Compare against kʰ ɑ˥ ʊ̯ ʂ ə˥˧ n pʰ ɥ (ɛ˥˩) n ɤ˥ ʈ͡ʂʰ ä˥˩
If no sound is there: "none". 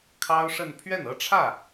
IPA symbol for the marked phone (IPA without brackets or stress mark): ɛ˥˩